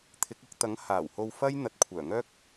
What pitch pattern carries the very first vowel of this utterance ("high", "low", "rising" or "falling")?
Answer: rising